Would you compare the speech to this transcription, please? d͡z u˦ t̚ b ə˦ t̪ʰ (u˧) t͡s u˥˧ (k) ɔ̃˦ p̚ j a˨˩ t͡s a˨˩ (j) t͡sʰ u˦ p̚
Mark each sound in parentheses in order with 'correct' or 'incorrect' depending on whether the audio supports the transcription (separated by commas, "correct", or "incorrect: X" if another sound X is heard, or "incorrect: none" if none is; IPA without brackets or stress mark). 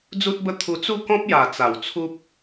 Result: correct, correct, incorrect: w